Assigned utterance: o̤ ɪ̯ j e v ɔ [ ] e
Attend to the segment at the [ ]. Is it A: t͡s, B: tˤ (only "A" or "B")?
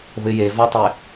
B